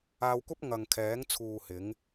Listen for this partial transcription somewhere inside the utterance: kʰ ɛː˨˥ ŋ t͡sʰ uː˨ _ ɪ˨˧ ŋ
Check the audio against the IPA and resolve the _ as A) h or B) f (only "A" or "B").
A